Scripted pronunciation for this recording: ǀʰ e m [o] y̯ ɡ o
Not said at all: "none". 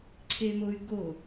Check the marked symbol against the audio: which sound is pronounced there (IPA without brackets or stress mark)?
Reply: o